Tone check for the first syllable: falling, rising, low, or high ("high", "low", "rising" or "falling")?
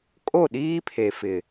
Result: falling